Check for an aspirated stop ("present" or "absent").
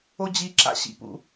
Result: absent